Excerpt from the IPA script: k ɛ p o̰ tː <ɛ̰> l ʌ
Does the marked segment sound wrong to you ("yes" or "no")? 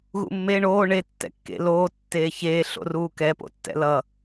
no